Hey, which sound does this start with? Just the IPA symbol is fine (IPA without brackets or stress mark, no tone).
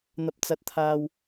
n̪